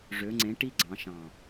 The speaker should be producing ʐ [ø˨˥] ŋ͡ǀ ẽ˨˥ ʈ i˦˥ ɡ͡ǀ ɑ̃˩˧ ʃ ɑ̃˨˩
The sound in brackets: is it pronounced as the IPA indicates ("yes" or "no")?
yes